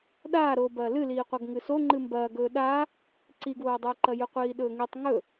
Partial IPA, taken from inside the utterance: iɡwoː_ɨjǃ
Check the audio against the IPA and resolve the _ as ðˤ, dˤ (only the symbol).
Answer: dˤ